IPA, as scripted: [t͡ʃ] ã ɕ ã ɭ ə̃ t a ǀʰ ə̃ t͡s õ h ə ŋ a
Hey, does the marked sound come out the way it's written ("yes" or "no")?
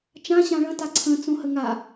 yes